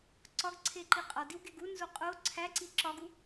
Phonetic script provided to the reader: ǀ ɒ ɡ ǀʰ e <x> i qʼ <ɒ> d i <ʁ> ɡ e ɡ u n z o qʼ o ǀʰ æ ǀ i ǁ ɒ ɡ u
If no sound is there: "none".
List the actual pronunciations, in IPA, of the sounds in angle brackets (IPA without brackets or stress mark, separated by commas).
ǃ, ɒ, w